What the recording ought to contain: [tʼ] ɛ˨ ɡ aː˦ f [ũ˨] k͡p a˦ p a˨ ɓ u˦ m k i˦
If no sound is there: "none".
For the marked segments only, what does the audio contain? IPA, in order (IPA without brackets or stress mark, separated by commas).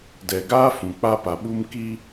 d, ũ˨